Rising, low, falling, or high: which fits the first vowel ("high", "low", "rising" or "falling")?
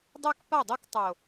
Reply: high